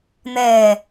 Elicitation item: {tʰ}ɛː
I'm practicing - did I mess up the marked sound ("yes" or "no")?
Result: yes